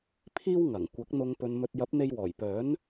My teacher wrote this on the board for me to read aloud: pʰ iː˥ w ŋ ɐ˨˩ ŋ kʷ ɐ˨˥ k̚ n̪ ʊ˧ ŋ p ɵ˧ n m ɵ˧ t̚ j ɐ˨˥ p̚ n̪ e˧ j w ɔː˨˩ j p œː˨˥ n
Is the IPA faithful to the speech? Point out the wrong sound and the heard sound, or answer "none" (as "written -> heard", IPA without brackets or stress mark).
none